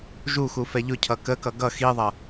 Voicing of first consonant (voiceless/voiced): voiced